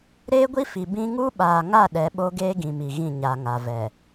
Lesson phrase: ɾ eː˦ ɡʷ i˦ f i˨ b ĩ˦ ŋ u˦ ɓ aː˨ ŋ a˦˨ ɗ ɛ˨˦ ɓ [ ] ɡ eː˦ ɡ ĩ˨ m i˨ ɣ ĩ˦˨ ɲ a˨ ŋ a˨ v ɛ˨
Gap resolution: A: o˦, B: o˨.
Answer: A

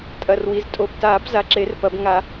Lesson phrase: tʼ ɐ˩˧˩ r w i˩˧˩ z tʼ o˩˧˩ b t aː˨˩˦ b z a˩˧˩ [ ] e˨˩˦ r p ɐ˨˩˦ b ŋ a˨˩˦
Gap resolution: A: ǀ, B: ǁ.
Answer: B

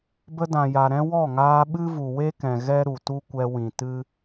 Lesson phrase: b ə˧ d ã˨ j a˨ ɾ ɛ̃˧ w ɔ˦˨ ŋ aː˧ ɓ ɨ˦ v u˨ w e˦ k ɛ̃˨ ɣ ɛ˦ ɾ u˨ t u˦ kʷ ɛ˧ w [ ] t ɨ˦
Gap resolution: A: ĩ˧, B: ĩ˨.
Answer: B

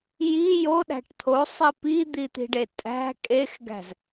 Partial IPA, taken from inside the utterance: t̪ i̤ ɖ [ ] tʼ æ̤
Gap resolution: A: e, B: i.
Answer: A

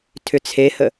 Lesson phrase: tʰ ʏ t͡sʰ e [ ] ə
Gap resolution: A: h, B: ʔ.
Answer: A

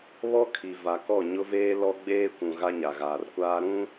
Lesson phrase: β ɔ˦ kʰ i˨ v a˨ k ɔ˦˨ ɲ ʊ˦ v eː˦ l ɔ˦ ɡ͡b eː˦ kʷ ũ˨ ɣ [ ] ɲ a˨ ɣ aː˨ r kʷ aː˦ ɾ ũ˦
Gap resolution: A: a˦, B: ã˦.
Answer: A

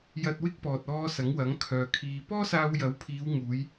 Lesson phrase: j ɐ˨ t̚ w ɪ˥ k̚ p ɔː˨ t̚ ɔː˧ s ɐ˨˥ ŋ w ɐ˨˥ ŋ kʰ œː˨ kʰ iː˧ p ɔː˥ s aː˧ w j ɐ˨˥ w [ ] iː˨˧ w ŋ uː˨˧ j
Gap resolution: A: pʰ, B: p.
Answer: A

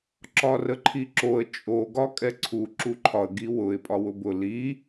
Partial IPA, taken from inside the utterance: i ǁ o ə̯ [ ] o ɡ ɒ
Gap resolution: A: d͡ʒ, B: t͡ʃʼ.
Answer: B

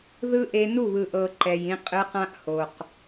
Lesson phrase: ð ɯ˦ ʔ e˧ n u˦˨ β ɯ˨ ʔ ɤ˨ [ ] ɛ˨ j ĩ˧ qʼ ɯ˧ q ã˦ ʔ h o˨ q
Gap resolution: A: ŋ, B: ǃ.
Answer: B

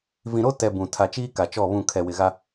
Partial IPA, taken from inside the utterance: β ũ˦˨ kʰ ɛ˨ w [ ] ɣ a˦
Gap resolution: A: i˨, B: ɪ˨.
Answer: B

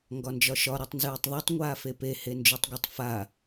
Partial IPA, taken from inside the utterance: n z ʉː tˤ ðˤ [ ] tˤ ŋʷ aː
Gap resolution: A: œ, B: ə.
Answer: A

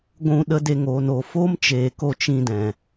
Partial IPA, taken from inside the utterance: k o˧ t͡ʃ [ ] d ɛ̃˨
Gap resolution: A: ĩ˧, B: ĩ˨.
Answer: A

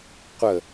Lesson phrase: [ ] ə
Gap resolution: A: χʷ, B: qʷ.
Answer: B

